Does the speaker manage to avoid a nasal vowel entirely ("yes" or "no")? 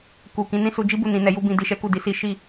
no